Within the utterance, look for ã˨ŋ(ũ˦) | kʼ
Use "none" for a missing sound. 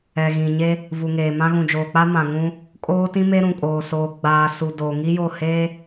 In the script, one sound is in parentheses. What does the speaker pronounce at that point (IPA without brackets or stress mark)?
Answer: ũ˦